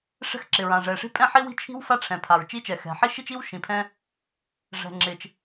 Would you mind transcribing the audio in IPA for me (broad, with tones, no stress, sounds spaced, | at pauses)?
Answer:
ʂ ɛ̤˥ x ǁ ɪ˩ ɹ ã˩ ʐ ɛ˩ ʂ i̤˥ pʼ ɛ̃˥ ħ i˥ w i̤˥ t͡ʃʰ i̤˥ w f a˥ ʈ͡ʂʰ ɛ̃˩ pʰ a˩ ɹ t͡ʃ i˥ t͡ʃ ɛ˩ x ɛ̤˩ ħ i˥ ʃ i˥ t͡ʃ i˥ w ʃ ĩ˩ pʰ ɛ̃˥ | ʐ ɛ̤˩ ŋ͡ǁ ɪ˩ t͡ʃ